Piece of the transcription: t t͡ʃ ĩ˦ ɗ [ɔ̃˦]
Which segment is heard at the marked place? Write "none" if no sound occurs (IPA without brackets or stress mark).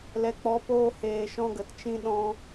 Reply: ɔ̃˦